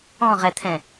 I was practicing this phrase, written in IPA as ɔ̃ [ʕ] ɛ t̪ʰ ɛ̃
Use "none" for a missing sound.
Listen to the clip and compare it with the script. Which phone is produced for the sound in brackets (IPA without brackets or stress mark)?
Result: ʁ